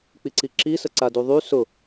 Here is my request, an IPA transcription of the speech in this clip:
k͡piǀiǁisə ǀaduðˤy sʊ

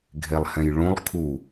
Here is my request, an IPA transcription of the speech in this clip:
ɡʱelˠhɛ̃jɭũlˠ kʰu

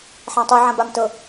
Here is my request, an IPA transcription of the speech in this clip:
ħãtˤu ʕãbamtɤ

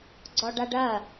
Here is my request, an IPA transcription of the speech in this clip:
ɡ͡ǀɔɖaɖɐ

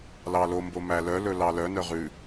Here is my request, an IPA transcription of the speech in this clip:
lɑlo mbomælœ lɵlɑlœ nœʁʉ

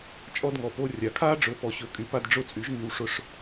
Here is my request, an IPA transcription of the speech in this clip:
t͡ʃʼɔ˧dŋɔ˩po˧ rʲa˩kʰaː˥ɖ͡ʐɵ˩˥ pɔ˩ɕɵ˩˥ kʼy˩˥pa˧d ɖ͡ʐʊ˥˩t͡sʼy˩˥ʒŋy˧w ʂʊ˧ʂ

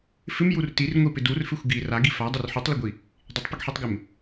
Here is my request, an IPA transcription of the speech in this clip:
fɪmjur tirŋʷipɪ durfɪxʷ ɡi raɡi fadˤɪr ħutˤlɪɡʷi | dˤɪtˤpɪɡħitˤɡɪm

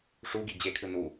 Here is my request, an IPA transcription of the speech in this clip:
ʂuɡi d͡ʑekʰɯ nu

